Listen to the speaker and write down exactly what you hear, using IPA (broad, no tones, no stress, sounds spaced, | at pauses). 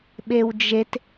ɓ e w d͡ʒ e t